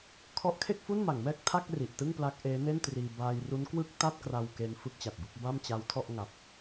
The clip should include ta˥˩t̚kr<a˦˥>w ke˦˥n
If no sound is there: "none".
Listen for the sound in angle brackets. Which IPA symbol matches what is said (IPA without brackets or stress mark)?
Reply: a˧